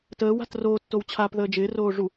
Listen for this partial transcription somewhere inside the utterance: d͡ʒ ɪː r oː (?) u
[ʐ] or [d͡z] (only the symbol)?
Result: ʐ